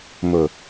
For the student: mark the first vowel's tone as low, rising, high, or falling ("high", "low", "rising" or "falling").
low